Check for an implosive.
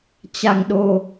present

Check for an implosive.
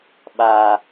present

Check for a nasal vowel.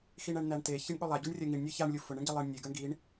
absent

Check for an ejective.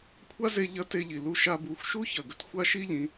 absent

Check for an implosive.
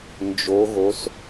absent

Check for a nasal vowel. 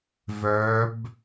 absent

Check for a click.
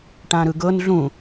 absent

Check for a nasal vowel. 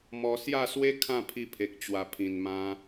present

